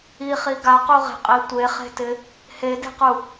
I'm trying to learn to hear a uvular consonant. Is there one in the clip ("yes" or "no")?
yes